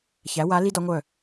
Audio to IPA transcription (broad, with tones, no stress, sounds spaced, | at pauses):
ç æ˩˧ w a˩˧ l i˧ d ɒ˩˧ ŋʷ œ˧˩